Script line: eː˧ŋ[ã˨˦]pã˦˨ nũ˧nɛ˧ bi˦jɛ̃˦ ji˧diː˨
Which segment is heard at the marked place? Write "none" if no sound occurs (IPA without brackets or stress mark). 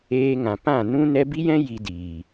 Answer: ã˨